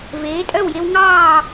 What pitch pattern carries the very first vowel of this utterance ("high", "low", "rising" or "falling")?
rising